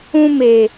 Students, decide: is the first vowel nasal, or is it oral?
nasal